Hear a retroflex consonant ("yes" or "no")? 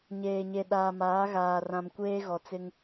no